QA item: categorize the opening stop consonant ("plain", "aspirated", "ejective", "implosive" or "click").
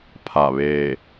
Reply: aspirated